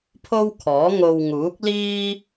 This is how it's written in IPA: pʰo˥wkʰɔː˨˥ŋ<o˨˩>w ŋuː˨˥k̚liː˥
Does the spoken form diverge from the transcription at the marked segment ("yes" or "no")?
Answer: yes